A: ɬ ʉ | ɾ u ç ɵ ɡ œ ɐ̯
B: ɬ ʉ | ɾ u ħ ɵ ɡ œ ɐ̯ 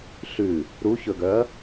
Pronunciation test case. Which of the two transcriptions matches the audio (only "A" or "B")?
A